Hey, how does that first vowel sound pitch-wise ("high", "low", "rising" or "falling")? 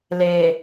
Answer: low